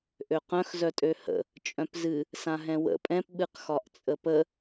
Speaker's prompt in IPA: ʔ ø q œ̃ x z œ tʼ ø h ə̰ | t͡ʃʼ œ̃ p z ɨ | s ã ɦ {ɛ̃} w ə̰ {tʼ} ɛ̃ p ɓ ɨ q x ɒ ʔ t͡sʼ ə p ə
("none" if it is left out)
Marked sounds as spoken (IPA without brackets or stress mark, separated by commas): ɛ̃, pʼ